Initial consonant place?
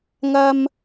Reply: velar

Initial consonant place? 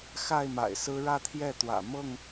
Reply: velar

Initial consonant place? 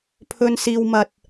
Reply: labial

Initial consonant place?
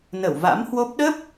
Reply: alveolar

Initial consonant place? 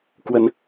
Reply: velar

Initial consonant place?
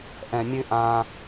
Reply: glottal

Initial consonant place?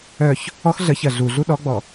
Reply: palatal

